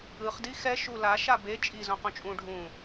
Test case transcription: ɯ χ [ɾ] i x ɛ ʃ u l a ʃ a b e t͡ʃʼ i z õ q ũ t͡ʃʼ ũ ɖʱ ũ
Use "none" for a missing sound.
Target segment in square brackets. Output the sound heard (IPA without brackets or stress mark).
d